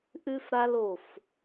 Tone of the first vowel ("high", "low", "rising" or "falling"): high